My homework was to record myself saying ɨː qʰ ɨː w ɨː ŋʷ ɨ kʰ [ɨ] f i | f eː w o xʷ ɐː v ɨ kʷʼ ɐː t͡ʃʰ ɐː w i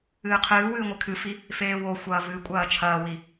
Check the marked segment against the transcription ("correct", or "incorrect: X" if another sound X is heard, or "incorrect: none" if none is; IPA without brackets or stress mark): correct